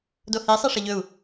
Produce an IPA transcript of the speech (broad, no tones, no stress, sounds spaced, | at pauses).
d o h i sˤ i ʂ ɐ ʎ ɵ u̯